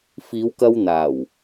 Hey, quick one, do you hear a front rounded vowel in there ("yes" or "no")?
no